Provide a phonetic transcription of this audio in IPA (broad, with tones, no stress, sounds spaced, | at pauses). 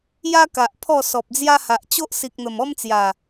j a˦ k a˨ ʔ pʰ ɔ˥˧ s ɔ˨ p̚ d͡z j a˦ h a˨ ʔ t͡ɕ o˦ ʔ s i˨ k̚ n̪ ə˨˩ m ɔ˦ m t͡s j a˨˩